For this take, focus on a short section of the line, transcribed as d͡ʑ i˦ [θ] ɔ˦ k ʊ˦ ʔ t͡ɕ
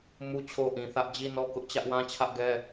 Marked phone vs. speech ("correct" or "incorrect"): incorrect